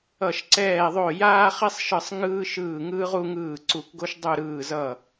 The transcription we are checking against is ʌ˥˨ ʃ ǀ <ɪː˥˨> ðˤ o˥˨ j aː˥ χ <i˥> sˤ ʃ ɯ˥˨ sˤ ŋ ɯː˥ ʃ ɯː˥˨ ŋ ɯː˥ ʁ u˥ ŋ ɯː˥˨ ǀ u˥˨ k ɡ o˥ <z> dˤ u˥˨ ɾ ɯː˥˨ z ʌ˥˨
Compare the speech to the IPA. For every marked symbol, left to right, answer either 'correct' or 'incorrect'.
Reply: incorrect, correct, incorrect

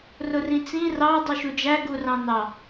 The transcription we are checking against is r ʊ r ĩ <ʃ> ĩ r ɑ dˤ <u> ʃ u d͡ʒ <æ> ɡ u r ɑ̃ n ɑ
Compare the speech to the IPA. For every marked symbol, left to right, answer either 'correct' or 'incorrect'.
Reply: incorrect, correct, correct

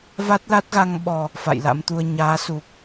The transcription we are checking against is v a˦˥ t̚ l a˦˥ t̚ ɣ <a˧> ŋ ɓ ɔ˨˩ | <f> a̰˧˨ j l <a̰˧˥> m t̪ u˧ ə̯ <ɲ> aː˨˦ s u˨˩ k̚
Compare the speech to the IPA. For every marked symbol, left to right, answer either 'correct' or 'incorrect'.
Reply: correct, correct, correct, correct

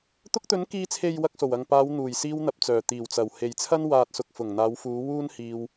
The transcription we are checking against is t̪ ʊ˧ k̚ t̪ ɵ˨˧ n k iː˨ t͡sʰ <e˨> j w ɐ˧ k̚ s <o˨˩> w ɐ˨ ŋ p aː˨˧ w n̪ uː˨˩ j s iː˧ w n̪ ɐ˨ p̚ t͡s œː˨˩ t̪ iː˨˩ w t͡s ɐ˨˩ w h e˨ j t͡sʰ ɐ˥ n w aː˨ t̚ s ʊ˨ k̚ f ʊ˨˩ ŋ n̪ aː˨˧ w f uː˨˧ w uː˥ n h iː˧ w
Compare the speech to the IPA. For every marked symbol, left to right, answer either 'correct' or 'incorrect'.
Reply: correct, correct

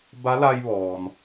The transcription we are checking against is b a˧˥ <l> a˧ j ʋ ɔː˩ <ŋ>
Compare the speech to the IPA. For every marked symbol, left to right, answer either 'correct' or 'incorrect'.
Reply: correct, incorrect

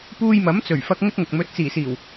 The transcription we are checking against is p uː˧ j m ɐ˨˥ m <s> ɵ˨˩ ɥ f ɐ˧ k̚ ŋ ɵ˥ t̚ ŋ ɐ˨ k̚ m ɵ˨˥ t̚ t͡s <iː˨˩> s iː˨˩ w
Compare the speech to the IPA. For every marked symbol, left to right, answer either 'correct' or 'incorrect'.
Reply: incorrect, correct

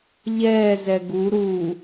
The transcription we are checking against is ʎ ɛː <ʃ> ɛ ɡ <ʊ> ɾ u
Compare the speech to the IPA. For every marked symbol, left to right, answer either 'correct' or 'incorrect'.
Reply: incorrect, incorrect

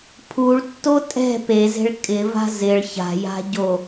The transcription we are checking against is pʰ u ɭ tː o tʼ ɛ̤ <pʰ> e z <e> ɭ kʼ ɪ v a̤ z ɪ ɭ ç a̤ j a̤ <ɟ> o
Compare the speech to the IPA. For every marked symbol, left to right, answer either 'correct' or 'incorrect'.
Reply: incorrect, incorrect, correct

